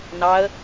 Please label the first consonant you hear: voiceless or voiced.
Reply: voiced